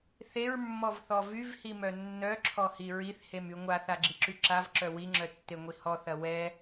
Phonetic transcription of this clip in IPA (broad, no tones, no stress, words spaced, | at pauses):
θeɹmːɔvθɔ vyvhimœ nːœǁʰɔhi ɹiθhemy ŋʷaθaɡ͡ǁiǁy ǁavǁœ wiŋ͡ǁœtːeŋʷi hɔθɐ wɛ